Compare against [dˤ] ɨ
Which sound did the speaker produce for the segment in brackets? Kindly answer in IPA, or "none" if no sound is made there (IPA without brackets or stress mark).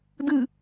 d